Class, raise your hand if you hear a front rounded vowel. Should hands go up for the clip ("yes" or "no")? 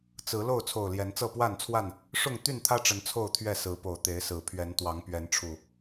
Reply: yes